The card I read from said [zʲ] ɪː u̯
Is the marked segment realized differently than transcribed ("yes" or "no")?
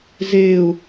yes